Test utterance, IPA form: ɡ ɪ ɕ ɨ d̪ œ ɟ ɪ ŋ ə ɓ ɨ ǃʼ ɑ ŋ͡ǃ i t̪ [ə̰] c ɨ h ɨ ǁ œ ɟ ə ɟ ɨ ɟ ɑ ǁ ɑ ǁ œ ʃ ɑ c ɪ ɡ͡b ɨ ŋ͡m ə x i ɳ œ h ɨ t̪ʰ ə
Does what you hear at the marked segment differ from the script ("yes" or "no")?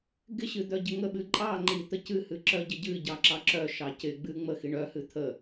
yes